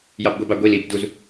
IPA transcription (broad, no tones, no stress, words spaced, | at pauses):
jɑbɡʷibɑ ɡʷil ib duz